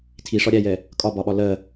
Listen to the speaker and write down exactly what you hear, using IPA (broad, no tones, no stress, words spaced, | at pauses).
tʰiʂɒ ɾʲæjɛ | kʼɒbɒɓɒ lɜ